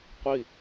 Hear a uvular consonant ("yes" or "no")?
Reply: yes